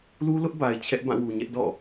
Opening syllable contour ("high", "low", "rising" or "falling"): high